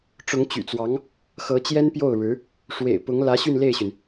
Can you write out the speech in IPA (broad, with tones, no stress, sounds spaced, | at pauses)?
ʈ͡ʂ ʊ˧˥ ŋ t͡ɕ y̰˨˩ t͡s w ɑ˧˥ ŋ | x ɤ˧˥ t͡ɕ j ɛ˥ n p j o˥˩ ʊ̯ ɻ ɻ̩˧˥ | ʂ w ḛ˨˩ ɪ̯ p ʊ˧˥ ŋ l ä˧˥ ɕ y˥˧ n l e˥˩ ɪ̯ ɕ y˩ n